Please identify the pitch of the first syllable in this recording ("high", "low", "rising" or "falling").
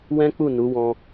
high